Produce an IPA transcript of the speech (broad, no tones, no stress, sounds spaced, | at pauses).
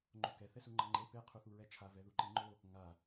ŋ͡ǃ o k ɛ θ ɛ s u ŋ͡ǃ ʌ ŋ͡ǃ e p e qʰ u θ u ɹ ɛ t͡ʃʰ a v ɛ ð u ǃ i ŋ͡ǃ o | ŋ a